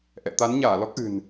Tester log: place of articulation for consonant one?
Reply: glottal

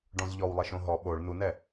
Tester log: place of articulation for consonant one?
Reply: retroflex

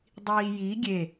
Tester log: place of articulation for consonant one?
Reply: alveolar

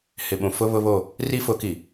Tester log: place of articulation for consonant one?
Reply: glottal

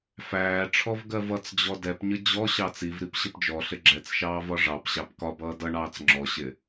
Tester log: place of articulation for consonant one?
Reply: labial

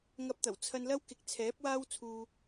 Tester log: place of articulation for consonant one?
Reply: velar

